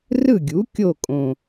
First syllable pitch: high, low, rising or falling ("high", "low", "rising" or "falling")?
falling